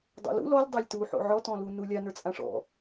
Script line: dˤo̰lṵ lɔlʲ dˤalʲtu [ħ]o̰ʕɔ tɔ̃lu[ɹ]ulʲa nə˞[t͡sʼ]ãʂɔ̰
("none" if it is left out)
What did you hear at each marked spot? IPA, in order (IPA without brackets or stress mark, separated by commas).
ħ, n, t͡sʼ